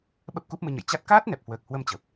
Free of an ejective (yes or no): yes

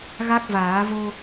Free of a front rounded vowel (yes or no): yes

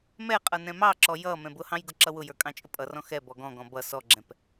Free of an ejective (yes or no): no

